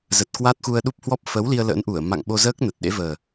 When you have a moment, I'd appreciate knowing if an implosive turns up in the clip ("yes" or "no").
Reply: yes